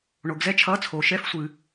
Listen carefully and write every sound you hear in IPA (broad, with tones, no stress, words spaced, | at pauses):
ɳo˨ɡzɛ˦˥t͡ʃʰʌː˧˥˧t͡sʰo˨ ʃɛ˧˥˧fsʷɨ˨